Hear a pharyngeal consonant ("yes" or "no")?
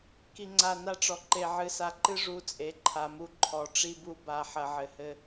yes